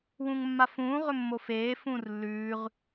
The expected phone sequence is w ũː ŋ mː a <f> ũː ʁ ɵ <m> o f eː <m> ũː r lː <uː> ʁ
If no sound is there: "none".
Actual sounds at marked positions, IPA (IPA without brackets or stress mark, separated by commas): f, mː, f, ʉː